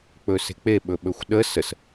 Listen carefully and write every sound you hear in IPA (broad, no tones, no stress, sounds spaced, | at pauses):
k͡p ɵ s e̤ k͡p e ɓ ɵ ɓ ɵ xʷ ɗ ə s ə s